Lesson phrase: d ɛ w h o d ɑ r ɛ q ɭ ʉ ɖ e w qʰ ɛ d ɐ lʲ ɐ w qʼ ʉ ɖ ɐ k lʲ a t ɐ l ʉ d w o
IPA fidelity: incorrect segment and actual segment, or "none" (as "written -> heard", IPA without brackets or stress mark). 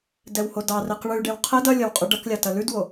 none